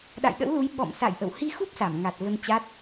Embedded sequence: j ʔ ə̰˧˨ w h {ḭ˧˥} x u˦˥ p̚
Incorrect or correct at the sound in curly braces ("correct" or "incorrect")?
incorrect